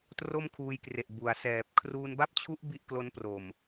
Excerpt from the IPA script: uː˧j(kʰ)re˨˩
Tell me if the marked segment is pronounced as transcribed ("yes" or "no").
no